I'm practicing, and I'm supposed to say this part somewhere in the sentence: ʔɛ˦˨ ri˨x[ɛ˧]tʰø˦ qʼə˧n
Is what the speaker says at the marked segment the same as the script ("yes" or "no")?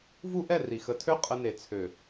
no